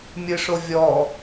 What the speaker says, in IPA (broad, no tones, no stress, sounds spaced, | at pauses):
mʲ ɯ ʂ o vʲ ɔ